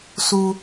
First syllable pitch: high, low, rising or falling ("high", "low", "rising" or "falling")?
high